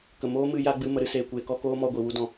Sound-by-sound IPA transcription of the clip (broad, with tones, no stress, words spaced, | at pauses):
kə˨ moː˦mɨ˧ ja˦ɡ͡bɨ˧ mə˨˦ɾɨ˦seː˨kʷeː˧ kɔ˧koː˦mɔ˧ ɡʷi˨wu˦dɔ̃˧